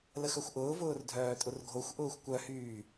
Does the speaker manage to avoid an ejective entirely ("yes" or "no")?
no